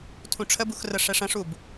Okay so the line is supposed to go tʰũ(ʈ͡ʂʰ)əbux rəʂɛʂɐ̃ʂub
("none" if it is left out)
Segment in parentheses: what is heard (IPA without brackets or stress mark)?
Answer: ʈ͡ʂʰ